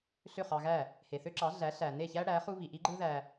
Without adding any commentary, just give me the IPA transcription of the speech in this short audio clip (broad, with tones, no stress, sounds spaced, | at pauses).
ɬ ø˥˩ χ ɑ˧ ɣ æ˥˩ | h e˩ θ ø˥ ǁ ɑ˩˥ ɮ æ˩˥ ɬ æ˩ n e˥˩ ç æ˥ ɽ æ˩˥ χ u˥ β i˩ ʔ i˥ ɡ͡ǃ ɯ˥ ð æ˧